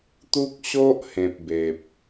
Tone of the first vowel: high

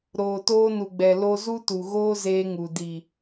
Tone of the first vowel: low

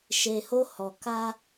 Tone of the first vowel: low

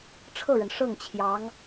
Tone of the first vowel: falling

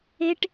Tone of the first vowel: low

